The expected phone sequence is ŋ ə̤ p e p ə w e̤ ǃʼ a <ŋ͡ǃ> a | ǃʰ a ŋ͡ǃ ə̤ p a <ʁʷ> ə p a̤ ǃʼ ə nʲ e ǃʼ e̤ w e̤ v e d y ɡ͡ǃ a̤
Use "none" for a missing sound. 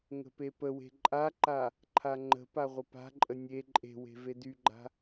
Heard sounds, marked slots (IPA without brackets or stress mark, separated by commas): ǃ, ʁʷ